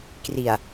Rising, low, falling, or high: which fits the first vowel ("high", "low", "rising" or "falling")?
low